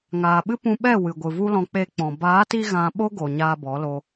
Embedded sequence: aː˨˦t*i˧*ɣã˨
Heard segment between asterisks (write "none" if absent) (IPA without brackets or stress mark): i˧